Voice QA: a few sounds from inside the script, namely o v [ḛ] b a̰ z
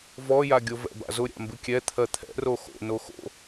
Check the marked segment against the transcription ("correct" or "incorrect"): incorrect